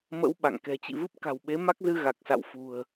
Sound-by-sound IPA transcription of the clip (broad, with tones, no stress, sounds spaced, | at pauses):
m ə̰˧˥ w ɓ a̰˧˨ ŋ k ɛ̤˨˩ t͡ɕ ḭ˧˨ v ɨ˦˥ p̚ k a̤˨˩ w ɓ e˨˦ m a˦˥ k̚ z ɨ˧ ɣ a˨˩ k̚ s a̰˧˨ w f ṳ˨˩ ə̯